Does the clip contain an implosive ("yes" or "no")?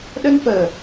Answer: yes